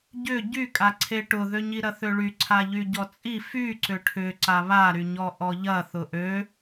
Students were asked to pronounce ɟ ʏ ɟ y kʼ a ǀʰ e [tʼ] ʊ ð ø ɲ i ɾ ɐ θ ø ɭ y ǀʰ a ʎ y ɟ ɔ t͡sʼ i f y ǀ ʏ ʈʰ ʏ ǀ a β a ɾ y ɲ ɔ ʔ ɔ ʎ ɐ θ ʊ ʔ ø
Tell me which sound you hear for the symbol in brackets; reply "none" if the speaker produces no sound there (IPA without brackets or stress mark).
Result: ʈ